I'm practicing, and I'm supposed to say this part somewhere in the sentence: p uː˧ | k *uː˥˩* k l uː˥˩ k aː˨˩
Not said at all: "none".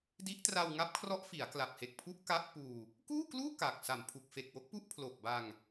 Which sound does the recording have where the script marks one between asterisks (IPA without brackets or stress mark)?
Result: uː˥˩